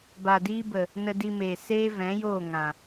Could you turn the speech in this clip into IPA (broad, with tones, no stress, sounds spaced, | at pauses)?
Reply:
b a˨ d iː˧ b ə˨ | n ə˧ d i˧ m eː˨ s eː˦ v ɛ̃˨˦ j oː˦˨ ŋ ã˨